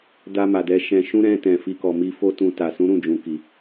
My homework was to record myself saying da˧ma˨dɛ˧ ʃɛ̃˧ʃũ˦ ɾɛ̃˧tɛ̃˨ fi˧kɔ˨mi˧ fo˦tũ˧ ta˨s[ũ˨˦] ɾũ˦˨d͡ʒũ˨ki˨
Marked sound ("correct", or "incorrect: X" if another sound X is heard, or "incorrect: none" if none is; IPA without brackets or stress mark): correct